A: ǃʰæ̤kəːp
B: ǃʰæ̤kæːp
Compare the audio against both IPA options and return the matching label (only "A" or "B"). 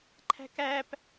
B